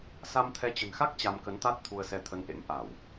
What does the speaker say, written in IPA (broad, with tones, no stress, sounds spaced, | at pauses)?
s a˧ m t̪ʰ ɛ˨˦ t͡ɕ ə̤˨˩ n x a˦˥ k̚ t͡ɕ a˧ m k ə˨˦ n t̪ a˦˥ t̚ t̪ʰ u˧ ə̯ s ɛ˧ t̪ʰ ə˧ n ʔ ḛ˧˥ m ʔ a˧˩˨ w